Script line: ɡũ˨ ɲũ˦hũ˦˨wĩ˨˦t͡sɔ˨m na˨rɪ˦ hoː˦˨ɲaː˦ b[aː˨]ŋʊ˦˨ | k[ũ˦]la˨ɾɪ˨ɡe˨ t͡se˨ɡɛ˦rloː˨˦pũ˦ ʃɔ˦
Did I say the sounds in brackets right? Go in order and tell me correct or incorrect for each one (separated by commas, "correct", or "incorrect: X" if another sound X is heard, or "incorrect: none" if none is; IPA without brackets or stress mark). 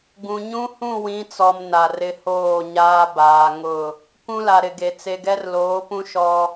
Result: correct, correct